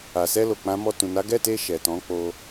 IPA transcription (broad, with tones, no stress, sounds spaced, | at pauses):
a˨ s ɛ˧ l o˨ k͡p ã˨˦ m ɔ˧ t ũ˨ n a˨˦ ɡ ɛ˦˨ t e˧ ʃ ɛ˨ t ɔ̃˨˦ k͡p o˧